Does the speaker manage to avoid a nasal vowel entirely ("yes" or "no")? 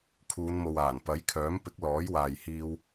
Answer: yes